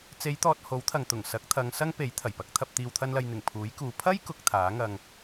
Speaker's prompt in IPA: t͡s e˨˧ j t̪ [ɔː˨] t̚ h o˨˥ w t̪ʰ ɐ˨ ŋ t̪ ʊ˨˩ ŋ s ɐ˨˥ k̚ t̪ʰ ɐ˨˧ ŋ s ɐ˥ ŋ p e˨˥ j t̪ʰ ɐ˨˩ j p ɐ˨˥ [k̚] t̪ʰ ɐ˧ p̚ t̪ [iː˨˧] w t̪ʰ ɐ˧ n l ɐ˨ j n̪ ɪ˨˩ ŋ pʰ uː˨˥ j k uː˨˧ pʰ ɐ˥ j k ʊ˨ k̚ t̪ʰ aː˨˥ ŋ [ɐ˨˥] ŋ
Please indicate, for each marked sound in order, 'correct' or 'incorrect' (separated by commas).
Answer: correct, correct, incorrect, incorrect